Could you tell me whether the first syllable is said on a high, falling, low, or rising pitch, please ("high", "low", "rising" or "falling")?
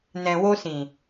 low